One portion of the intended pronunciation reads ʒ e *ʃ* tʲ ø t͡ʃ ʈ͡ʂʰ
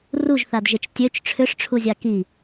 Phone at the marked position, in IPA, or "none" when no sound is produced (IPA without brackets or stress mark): t͡ʃ